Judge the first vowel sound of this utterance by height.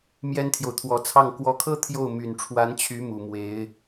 mid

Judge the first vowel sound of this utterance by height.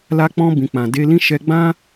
low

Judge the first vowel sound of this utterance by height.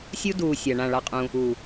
high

